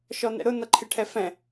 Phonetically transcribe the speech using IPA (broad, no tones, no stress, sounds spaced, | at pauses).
ʃ ɔ n ɛ̰ ɾ ʊ n ʌ ǃʰ ɪ ʈʰ ɛ f ɛ̃